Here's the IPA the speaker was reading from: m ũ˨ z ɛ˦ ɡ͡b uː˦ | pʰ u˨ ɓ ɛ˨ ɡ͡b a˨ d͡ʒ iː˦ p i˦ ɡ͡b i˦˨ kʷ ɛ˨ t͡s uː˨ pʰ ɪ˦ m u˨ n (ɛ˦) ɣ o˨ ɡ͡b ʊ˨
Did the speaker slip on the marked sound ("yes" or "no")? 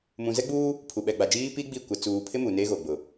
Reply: yes